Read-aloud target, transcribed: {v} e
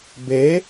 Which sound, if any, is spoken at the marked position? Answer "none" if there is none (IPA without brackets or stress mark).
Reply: b